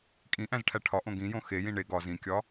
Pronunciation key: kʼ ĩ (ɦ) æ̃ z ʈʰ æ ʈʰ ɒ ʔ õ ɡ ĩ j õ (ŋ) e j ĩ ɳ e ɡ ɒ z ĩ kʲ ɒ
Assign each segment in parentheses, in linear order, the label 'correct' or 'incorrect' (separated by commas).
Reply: incorrect, incorrect